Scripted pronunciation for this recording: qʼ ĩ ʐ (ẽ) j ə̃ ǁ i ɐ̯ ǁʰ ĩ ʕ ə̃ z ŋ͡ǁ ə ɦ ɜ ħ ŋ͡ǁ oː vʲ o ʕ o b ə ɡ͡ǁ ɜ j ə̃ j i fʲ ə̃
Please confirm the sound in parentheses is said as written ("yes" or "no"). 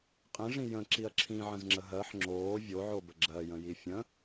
no